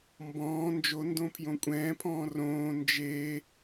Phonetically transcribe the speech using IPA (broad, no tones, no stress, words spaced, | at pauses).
mbɔ̃ː nd͡ʒo ndõpʰjõkʷʼɛ̃ːpʰɔ̃ː rõː nd͡ʒe